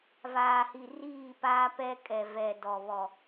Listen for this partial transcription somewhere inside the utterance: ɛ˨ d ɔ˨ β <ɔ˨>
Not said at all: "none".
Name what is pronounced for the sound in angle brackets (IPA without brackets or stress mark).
ɔ˨